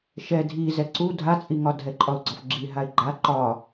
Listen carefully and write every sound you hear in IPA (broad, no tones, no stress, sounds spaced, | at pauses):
ʃ ɛ dʱ i z ɛ ǀ u dʱ a t͡sʼ i ŋ ɒ dʱ ɛ ǃʼ ɒ ʊ̯ ɡ͡ǀ ɒ f ɡ͡ǁ i ɦ a ɪ̯ ɡ͡ǃ a ǃ ɒ